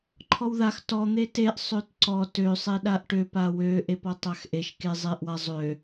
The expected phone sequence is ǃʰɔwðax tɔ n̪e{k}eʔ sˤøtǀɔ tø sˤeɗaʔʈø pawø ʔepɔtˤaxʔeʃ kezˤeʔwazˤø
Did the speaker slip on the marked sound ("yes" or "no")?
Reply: yes